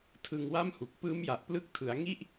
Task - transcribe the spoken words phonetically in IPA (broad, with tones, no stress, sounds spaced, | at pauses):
tʰ ɯ˧ ŋ w a˥˩ m h u˨˩ k̚ p ɯː˦˥ m j a˨˩ ʔ p l ɯ˦˥ k̚ tʰ ɯ˩˦ a̯ ŋ i˥˩ ʔ